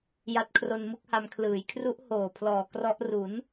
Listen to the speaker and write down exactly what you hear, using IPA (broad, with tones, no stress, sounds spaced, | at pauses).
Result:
j a˦˥ t̚ kʰ r o˧ n m ɯ˦˥ k̚ h a˧ m kʰ l ɯː˩˦ j kʰ r u˦˥ ʔ h oː˨˩ pʰ l ɔː˨˩ k r ɔ˦˥ ʔ r u˩˦ n